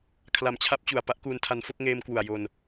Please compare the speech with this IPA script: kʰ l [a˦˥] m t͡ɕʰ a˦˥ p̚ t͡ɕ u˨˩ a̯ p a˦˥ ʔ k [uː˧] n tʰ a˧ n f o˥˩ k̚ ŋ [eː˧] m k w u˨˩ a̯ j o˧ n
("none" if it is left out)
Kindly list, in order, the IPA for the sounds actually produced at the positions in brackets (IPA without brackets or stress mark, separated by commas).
a˨˩, uː˧, eː˧